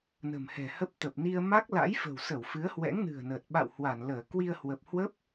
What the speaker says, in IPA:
n ə̤˨˩ m h ɛ̤˨˩ h ə˦˥ p̚ t̪ ə˨˩ p̚ n i˧ ə̯ m a˦˥ k̚ l a̰˧˥ j f ə̤˨˩ w s ə˧˩ w f ɨ˨˦ ə̯ h w ɛ̰˧˥ ŋ n ɨ̤˨˩ ə̯ n əː˨˩ t̚ ɓ a̰˧˨ w h w a˧˩ n l əː˧˩ k w i˧ ə̯ h w ə˨˩ p̚ h w ə˦˥ p̚

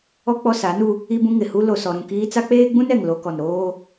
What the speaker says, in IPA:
ɔ˦ k͡p ɔ˦ s a˨˦ n u˦ | i˦ b ũ˦ ŋ ɪ˨ h u˦ l o˨ s ɔ˨ ɾ ũ˦˨ k iː˦ t͡s a˦ k͡p eː˦ ɡ͡b ũ˦ n ɛ˨ ŋ l o˦ k ɔ˨ n ɾ oː˦

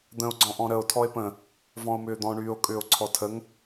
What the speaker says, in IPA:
d̪ ə̃ o̯ ɡ͡ǀ ɔ̃ ʔ ɔ̃ ɾ ə o̯ tʰ ɔ e̯ p ə̃ | v ɔ̃ o̯ m ʏː d̪ ɔ̃ ɳ yː o̯ kʼ ʏː o̯ ǀʰ ɔ tʰ ə ŋ

